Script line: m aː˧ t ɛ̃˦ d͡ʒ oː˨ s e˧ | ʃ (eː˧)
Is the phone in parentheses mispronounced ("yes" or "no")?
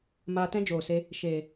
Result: yes